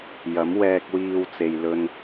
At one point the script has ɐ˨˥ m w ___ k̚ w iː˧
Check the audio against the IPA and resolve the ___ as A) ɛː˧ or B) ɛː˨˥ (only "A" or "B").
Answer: A